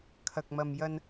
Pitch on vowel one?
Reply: low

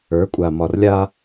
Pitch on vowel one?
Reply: rising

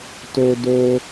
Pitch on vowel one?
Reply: high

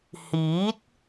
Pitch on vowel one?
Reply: rising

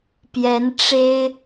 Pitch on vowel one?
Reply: rising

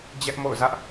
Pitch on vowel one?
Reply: high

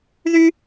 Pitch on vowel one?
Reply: high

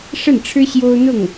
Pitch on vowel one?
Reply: falling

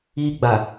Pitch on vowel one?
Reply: high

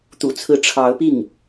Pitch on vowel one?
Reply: low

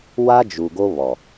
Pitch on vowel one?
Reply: high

